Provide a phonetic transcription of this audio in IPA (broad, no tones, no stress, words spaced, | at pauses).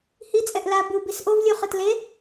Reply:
hi t͡sʼɛʔla bu bisʔovlʲuχɯt le